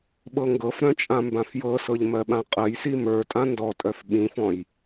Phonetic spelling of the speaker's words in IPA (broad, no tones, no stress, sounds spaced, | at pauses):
ɓ ɤ ŋ ɡ ɤ f ɾ œ̃ t͡ʃʼ ã m b ã f j ɤ s ɤ ʎ m ɜ ɓ ã qʼ ɜ j s i m ə˞ tʼ ã n d ɔ tʼ œ f ɓ ĩ f ɔ̃ j